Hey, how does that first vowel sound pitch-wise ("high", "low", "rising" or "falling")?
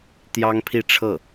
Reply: high